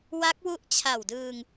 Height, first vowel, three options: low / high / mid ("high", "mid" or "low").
low